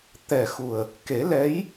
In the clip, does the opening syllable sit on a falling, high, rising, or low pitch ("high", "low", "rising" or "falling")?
low